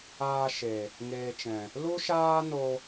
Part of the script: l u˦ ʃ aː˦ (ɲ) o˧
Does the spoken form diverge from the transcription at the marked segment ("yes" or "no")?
yes